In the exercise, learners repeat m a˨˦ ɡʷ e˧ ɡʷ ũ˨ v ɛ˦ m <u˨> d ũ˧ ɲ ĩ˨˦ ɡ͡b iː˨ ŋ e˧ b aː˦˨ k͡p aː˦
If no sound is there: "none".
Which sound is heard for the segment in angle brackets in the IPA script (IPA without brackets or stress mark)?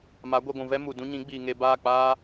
u˨